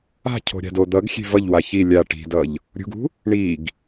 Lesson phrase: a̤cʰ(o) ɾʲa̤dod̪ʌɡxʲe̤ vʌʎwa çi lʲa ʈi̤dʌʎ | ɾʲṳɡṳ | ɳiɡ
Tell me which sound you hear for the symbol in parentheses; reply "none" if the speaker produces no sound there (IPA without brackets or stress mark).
o̤